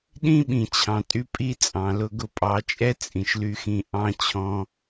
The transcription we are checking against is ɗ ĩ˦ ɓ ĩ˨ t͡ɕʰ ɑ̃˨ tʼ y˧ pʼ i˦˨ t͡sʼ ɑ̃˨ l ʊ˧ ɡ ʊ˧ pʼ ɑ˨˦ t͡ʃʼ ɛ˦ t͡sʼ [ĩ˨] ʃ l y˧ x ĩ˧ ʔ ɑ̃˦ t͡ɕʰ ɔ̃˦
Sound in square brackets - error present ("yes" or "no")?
no